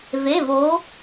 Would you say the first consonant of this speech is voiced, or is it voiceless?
voiced